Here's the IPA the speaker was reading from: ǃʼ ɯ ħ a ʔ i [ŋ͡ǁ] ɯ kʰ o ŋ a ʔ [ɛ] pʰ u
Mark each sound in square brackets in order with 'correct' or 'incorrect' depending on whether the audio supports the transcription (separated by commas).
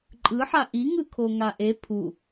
incorrect, incorrect